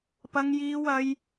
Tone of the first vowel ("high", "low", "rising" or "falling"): high